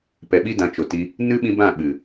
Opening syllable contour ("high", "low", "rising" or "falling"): low